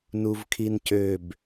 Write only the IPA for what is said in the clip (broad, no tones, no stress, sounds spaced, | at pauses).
n u v kʰ i n c ø b